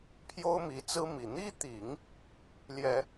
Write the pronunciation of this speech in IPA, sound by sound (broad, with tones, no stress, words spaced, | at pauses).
pʰjo˥ʊ̯mi˧˥t͡sɹ̩˥mi˨˩ n̪i˥t̪i˨˩˦ŋ | ljɛ˨˩˦